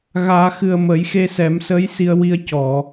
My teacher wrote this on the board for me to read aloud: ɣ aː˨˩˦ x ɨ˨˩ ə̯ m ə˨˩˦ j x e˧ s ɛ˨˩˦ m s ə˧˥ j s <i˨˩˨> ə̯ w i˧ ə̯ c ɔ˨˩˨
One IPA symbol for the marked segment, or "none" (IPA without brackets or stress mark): i˧